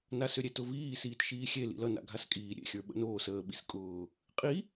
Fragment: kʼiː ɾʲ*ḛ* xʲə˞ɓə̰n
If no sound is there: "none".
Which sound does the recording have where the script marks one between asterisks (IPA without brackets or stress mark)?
ḛ